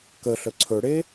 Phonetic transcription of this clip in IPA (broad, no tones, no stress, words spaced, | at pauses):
kəɬə ǀʰɵɽe